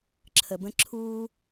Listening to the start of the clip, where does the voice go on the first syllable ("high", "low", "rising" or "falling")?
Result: low